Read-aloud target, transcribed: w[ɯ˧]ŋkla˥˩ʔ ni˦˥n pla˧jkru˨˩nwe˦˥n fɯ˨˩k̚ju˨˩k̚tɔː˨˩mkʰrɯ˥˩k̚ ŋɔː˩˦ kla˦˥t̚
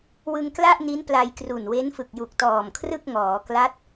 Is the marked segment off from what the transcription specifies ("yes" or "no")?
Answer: no